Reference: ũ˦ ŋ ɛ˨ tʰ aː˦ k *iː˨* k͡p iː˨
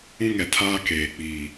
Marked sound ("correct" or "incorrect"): incorrect